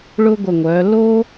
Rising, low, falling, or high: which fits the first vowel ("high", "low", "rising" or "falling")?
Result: high